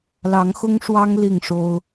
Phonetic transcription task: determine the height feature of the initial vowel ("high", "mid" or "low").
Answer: low